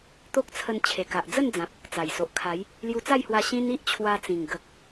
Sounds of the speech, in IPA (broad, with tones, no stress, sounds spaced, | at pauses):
t̪ o˦ k̚ t͡sʰ ə˧ n t͡ɕʰ e˨˩ k a˨ ʔ d͡z ə˥˧ n d͡z ã˨ p̚ | t͡s a˨˩ j s o˨ ʔ kʰ a˨˦ j | l j u˧ t͡s a˥˧ j h w a˧ ɕ ĩ˦ n i˦ ʔ t͡ɕʰ w a˧ t͡s ĩ˨˩ ŋ ɡ ə˨ k̚